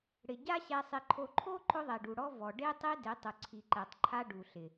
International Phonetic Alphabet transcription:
ɽ ɪ˨ ɟ a˦ ɕ ɛ˨ sˤ ɪ˨ ǃʰ o˨ ǃʰ o˦ ǃ ʊ˦ ðˤ ɛ˨ ɖ u˨ ɽ ɔ˦ v ɔ˨ ɖ e˦ tˤ e˦ d ɪ˨˦ tˤ ʊ˨ ǀʰ i˨ ǃ ɛ˨ tˤ ǃʰ a˦ ɖ u˨ ɬ ɪ˨

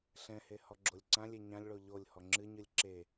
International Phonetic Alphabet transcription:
ɬ ɛ̃ h e h ɔ ɡ͡ǁ o lʲ ǀ ã lʲ e ɲ ã lʲ ɭ o ʎ o lʲ h ɔ ŋ͡ǁ ɨ ɲ ɨ lʲ ǁ e

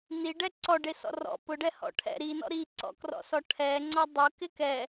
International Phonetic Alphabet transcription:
n i ɖ ɛ ǀ ɔ ɖ e s ɔ̰ r ɔ̰ p ʊ ɖ ɛ h ɔ̰ ʈʰ ɛ̰ ɾ i n ɔ̰ ɾ i ǀ ɔ̰ k r ɔ̰ s ɔ ʈʰ ɛ ŋ͡ǀ ɔ dˤ ʊ k ɪ k ɛ

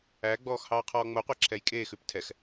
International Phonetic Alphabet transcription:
æ ɡ͡b ɔː x h ɑː qʰ ɔː ŋ͡m o qʷ æ ǁʰ ɛ j kʼ e x ʉ p tʰ ɛ x

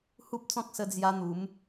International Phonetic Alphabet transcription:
h u˦ p̚ t͡s ɔ̃˦ k̚ s ə˦ d͡z j a˦ n̪ u˨˦ m

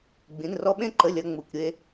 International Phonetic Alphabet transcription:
ɡ͡b ĩ˧˥˧ n r ɔ˥ ɓ ẽ˥ ǃ ə˧˥˧ lʲ ɐ˥ ŋ͡m u˧˥˧ kʷ ɾʲ e˥

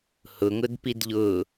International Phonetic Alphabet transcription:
h ʊ ŋ ʊ d p i d ʎ ʊ

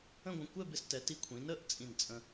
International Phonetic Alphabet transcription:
ə̃˥˧ ɡʷ ə̃˧ kʷ ɛ˥˧ b ɪ˧ s t ɛ˩˧ t i˧ kʷʰ ĩ˩˧ n ə˥˧ ʔ t͡sʼ ĩ˧˩ n t͡sʼ ə̃˧

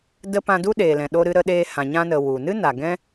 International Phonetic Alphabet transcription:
d ə˧ p ã˧ d u˦ ɗ eː˨ l ɛ̃˨ ɗ o˧ ɾ ɨ˧ ɾ ə˧ ɗ eː˧ h ã˨ ɲ ã˧ n ə˨ w u˨ n ɨ˦ n a˨ ɡ ɛ̃˦

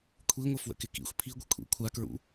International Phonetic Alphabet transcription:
kʷʰ i ŋʷ ə f w ə̰ k ɪ k ḭ xʷ pʰ i ɡʷ ɪ kʷʰ ḭ kʷʰ a k ɹ ṵ

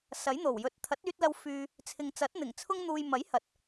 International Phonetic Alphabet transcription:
s ɐ˨˥ j n̪ o˨˩ w j ɵ˨˥ t̚ t̪ʰ ɐ˨˥ t̚ yː˧ t̚ l ɐ˧ w f yː˧ | t͡sʰ ɪ˨ ŋ t͡s ɐ˨˥ t̚ n̪ ɪ˨˩ ŋ t͡sʰ ʊ˧ ŋ n̪ uː˨ j m ɐ˨˥ j h ɐ˨ t̚

